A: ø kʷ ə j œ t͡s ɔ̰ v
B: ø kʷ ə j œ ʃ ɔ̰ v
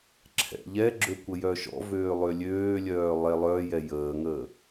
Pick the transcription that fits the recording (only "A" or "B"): B